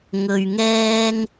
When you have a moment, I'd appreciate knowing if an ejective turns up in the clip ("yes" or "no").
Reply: no